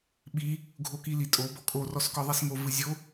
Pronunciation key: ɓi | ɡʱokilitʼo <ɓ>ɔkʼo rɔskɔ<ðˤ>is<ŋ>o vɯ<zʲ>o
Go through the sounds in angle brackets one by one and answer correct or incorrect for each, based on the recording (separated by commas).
incorrect, correct, correct, correct